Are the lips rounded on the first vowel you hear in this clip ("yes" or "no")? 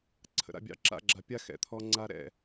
no